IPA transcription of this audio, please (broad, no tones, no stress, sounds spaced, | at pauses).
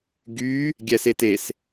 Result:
ɡ y | ɡʲ ɛ s e t e s